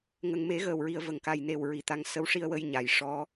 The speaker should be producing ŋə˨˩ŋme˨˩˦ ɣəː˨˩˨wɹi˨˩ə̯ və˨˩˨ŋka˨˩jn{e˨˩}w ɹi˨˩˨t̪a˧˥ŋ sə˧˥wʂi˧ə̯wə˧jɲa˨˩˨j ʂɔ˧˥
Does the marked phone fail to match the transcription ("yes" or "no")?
no